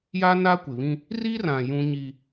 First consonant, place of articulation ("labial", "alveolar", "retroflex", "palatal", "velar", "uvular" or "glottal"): palatal